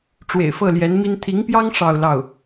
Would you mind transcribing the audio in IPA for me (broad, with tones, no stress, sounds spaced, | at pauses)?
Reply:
ʈ͡ʂ w ḛ˨˩ ɪ̯ f ɤ˥˩ l j ɛ˧˥ n m i˥ n t̪ʰ i˧˥ ŋ p j ɑ˥ ŋ ʂ ɑ˥˧ ʊ̯ l ɑ˥˩ ʊ̯